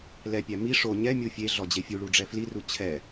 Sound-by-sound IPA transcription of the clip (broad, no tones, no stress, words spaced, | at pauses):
lɛpʲæ mi ʂo ɲɛmʲu fʲe ɮɔd͡ʑefʲuɭu ɖ͡ʐɛfliru t͡ɕʰɛ